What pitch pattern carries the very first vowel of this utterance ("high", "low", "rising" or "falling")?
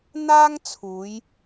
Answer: high